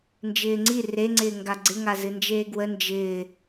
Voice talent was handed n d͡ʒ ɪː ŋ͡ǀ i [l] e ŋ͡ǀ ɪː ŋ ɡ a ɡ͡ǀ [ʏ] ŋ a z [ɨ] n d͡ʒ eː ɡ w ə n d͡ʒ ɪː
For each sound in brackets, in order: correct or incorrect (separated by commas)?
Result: incorrect, incorrect, correct